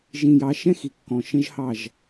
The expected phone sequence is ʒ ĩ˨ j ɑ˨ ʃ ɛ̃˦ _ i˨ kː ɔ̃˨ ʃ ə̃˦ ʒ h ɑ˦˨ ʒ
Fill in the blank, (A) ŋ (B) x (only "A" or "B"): B